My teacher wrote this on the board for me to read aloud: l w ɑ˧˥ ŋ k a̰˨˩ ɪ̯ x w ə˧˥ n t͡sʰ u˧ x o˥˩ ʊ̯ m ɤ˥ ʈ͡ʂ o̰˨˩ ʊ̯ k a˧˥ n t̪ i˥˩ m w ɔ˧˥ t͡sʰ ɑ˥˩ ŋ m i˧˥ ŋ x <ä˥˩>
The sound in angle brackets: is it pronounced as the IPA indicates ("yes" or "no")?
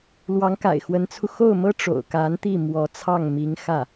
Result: yes